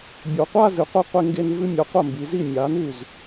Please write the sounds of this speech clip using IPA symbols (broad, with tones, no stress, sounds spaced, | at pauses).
bʲ o˩˧ qʷ a˥˧ z ɨ˩˧ qʷ i˧ qʷ e˧ ŋ ɡ e˧ n v ɨ˧ mʲ a˩˥ qʷ ɐ˥˩ m b i˩˧ z i˥˩ mʲ a˩˥ n ʉ˥˩ z